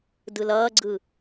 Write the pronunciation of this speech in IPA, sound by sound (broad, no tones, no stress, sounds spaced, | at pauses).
d ɯ l ʌː ɡ͡ǀ ɯ